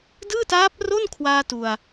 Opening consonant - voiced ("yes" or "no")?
yes